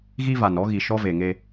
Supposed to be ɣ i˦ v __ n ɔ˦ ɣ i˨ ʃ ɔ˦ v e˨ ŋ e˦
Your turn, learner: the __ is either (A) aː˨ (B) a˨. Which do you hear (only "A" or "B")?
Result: B